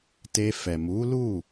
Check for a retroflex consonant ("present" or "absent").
absent